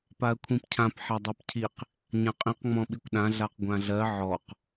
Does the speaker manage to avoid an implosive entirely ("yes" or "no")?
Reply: no